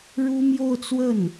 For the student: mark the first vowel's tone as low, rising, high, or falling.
high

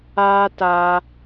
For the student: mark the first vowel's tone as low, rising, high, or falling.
high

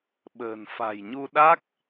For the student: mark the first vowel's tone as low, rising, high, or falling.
low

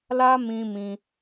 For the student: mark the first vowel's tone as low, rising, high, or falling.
high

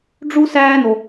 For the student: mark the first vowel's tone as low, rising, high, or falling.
high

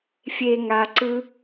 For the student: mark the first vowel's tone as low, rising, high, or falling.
low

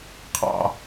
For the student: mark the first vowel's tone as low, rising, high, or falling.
low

